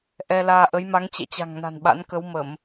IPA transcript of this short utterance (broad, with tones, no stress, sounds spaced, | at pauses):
ʔ ɛ˧ l aː˧ ʔ ə˨˦ j m a˨˦ ŋ t͡ɕ ɛ̰˧˨ t͡ɕ a̤˨˩ ŋ n a̤˨˩ n ɓ a̰˧˥ n k ə˨˦ w m ə˧˩˨ m